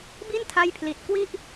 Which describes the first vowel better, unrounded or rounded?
unrounded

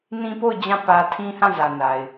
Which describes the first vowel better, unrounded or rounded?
unrounded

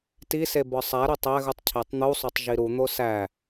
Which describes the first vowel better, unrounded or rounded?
unrounded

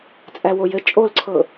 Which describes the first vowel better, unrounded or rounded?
unrounded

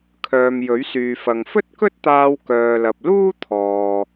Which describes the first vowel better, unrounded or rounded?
rounded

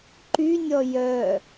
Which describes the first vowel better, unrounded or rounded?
rounded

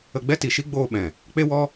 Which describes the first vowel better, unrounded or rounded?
unrounded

